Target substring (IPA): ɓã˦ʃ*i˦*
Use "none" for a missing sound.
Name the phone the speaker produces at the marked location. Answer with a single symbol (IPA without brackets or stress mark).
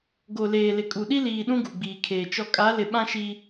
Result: i˦